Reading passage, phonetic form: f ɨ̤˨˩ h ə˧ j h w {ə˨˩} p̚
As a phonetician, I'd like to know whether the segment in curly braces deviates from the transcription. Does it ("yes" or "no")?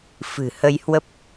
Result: yes